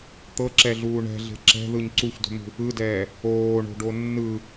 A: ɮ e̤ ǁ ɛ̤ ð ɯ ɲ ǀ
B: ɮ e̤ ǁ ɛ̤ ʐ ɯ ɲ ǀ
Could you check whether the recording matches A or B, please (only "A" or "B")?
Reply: A